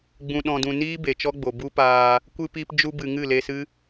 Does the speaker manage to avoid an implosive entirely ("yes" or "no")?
no